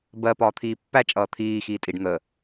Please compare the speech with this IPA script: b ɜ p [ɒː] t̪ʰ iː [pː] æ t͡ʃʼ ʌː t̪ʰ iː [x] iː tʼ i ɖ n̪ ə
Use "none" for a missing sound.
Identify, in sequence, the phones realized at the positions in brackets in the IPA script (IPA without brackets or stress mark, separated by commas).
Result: ɒː, pː, x